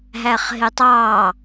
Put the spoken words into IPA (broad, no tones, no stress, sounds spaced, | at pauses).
ɦ æ χ ɦ ɪ tˤ ɑː